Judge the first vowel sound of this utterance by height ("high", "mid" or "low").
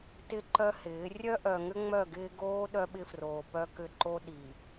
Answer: high